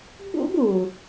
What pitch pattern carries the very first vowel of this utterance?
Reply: high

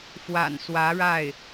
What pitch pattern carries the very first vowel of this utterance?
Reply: low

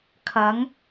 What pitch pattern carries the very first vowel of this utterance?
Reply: rising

